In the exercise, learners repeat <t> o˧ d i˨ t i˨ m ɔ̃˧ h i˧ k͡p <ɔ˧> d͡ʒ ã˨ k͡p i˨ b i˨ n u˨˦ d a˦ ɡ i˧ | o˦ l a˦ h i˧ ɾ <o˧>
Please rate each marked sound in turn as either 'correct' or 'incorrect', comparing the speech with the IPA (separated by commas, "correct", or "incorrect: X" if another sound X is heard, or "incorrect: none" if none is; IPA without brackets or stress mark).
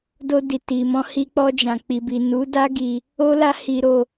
incorrect: d, correct, correct